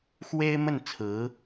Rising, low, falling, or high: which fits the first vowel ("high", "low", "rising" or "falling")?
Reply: high